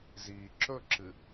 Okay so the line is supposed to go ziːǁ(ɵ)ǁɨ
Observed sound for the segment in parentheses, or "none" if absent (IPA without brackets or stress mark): ɵ